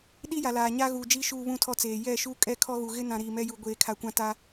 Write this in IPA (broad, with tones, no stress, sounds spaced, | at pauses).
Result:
ɗ i˦ j a˨ l aː˨ ɲ a˦ ɣ uː˨ d͡ʒ iː˦ ʃ uː˦ β ũ˦ tʰ ɔ˦ t͡s eː˨ j ɛ˦˨ ʃ uː˦ kʼ ɛ˦ kʰ ɔ˦ ɣ u˨ ɣ ɪ˦ n ã˨ ɾ iː˨ m ɛ˦ j u˨ ɡʷ eː˨ kʰ a˨ kʷ ã˦˨ t a˦